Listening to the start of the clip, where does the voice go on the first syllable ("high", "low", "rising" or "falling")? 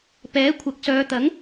rising